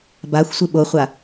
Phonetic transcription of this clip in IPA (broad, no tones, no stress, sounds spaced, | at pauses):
b a xʷ sʷ ɨ ɓ o χʷ a